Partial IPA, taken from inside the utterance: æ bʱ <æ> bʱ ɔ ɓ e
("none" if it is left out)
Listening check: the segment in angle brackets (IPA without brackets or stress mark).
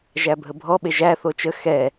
ə